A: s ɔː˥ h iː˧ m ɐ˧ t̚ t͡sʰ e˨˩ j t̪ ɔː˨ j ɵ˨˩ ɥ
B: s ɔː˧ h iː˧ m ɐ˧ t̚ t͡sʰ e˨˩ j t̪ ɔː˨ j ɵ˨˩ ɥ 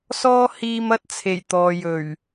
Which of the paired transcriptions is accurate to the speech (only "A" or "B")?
A